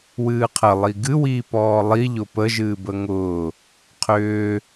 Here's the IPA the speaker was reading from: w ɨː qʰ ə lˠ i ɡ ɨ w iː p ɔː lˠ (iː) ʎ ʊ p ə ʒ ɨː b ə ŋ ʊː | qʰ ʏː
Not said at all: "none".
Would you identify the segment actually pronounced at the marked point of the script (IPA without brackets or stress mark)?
i